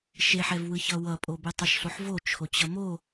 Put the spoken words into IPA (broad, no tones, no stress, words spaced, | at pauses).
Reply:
ʃeħɛvwɯ çʌwʌpʼo betˤiʃɬoħvo t͡ʃʰot͡ɕʌmo